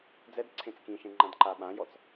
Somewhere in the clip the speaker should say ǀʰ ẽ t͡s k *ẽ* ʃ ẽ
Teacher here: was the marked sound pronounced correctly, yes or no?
no